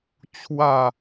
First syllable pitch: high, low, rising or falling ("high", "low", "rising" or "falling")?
falling